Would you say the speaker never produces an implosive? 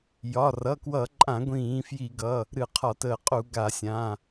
yes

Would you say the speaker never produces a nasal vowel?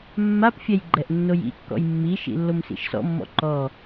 yes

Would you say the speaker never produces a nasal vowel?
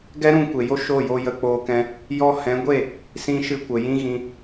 no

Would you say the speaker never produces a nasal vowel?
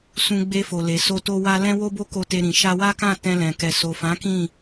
no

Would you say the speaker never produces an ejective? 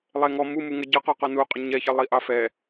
no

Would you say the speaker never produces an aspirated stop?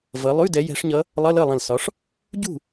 yes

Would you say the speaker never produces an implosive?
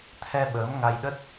no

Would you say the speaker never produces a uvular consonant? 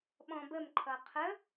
no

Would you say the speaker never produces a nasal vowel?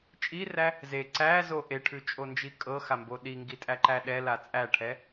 yes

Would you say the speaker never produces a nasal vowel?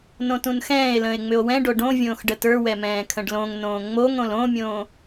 no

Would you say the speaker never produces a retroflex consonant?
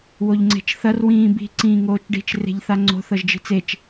no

